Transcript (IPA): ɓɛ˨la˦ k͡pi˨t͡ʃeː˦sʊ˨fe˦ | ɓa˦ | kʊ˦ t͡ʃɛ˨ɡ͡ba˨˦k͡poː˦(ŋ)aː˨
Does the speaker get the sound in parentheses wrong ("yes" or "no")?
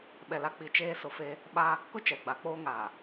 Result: no